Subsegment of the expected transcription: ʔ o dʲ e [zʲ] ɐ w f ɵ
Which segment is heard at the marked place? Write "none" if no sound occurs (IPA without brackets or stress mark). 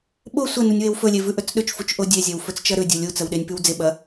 zʲ